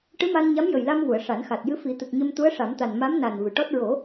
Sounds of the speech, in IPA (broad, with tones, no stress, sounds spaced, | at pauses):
ʈ ɨ˧˥ m a˧ n ɲ a˧˥ m j ə˨˩ j l a˧ m v u˨˩˨ ə̯ ʂ a˨˩˦ n x a˨˩ t̚ j ɨ˧˥ f i˨˩˦ t̪ ɨ˨˩ k̚ ɲ ə˧ m t̪ u˧˥ ə̯ ʂ a˨˩˦ m t̪ a˨˩ n m a˧˥ m n a˨˩ n v ɨ˨˩˨ ʈ ɔ˦˥ t̚ ɹ o˨˩˦